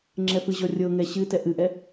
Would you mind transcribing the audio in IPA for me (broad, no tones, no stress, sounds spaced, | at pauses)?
ŋ͡ǁ ɛ f ɨ ʑ ɔ rʲ ɤ ŋ ɛ ɕ ɨ t ɛ ʔ ɨ ʔ ɛ